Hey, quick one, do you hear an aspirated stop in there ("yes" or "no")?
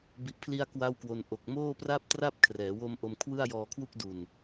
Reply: yes